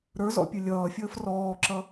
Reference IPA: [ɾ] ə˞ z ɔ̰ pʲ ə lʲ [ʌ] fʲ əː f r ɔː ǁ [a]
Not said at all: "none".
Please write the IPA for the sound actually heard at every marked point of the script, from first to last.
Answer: ɾ, ʌː, ʌ

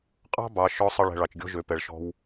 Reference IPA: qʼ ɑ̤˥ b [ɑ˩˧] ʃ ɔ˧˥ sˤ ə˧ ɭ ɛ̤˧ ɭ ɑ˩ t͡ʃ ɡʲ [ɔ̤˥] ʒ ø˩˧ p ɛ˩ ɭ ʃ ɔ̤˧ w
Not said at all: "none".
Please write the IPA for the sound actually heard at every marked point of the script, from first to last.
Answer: ɑ˩˧, ɔ̤˥

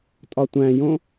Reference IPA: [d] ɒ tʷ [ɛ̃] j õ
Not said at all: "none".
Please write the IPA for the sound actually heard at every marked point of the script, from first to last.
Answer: tʼ, æ̃

